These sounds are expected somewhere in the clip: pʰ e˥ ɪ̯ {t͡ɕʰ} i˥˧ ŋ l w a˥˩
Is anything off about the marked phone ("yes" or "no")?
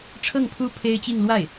yes